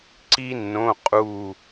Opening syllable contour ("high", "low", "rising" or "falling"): high